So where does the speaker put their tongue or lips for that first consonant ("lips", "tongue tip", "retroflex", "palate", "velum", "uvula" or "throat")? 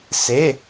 tongue tip